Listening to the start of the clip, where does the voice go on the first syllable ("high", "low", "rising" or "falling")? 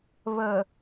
low